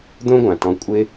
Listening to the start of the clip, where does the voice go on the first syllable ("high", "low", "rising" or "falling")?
high